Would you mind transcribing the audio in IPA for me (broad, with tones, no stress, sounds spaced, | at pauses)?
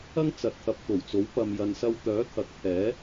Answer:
ɐ˥ ŋ t͡s ɐ˨˥ t̚ t̪ʰ ɐ˨ p̚ t̪ o˨˩ w t͡s o˨˥ w p ɐ˨ m j ɐ˨ n s ɐ˧ w t̪ œː˨˥ t̪ʰ ɐ˨˥ k̚ pʰ ɛː˨˥